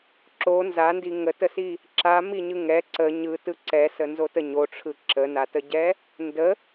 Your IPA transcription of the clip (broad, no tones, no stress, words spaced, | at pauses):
ǁo nzandi ŋətəsi | ǁamiɲɯ ŋɛ ǀə ɲɯtɯ ǀɛsənzotə ɲoʈ͡ʂʰɯ ǁənatəɟɛ | ndə